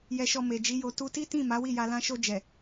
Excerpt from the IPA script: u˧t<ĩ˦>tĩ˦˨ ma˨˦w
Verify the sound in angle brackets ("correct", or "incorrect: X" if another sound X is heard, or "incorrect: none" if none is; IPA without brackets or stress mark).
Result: incorrect: i˦